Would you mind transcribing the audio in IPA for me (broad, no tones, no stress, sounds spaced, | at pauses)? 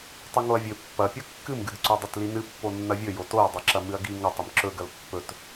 tˤ ɨ ŋ o ɐ̯ vʲ ɵ pː ɐ pʲ ɐ kː ɨ m ɡ ɨ d ǀ o dˤ i t l i n ɨ pː o nː ɐ vʲ ɵ j o t o ɐ̯ dˤ ɨ ǁ ɐ m ɨ ɐ̯ ɡ i ŋ ɐ tˤ i m ǁ ɵ ɡ ɐ l pː ɵ t